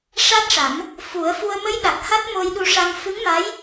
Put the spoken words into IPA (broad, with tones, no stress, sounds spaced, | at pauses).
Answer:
ʂ a˦˥ t̚ ʂ a˨˩˦ m | f u˨˩˦ ə̯ f u˧ ə̯ m ə˧˥ j ɗ a˨˩ k̚ h a˦˥ t̚ m o˧ j ɗ u˧ ʂ a˧ ŋ f ɨ˧˥ ŋ m a˧˥ j